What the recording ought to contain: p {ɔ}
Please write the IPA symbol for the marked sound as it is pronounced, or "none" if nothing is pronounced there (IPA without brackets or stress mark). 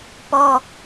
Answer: ɔ